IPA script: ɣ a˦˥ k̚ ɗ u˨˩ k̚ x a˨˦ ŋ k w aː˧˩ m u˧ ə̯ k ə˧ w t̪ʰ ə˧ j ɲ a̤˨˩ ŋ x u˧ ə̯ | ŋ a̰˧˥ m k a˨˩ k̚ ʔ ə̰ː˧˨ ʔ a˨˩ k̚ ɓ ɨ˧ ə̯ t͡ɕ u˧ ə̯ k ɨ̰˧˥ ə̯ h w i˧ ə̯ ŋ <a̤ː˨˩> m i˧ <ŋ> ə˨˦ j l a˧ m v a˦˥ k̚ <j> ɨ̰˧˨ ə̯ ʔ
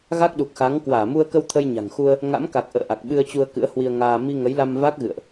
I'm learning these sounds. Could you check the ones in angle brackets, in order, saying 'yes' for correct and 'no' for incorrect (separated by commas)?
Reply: no, yes, no